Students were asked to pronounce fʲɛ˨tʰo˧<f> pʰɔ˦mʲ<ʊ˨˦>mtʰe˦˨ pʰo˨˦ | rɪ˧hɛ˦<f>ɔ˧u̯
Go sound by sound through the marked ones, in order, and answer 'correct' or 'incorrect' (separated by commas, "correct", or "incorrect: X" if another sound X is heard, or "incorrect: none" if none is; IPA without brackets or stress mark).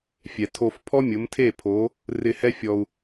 correct, correct, incorrect: fʲ